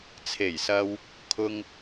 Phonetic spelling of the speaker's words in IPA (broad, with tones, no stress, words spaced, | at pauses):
t͡sʰe˨˩jsɐ˧w | kʰʊ˧ŋ